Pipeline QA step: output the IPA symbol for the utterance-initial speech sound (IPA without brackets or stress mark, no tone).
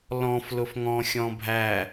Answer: l